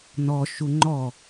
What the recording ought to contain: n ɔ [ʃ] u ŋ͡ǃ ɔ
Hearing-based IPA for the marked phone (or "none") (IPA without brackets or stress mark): ʃ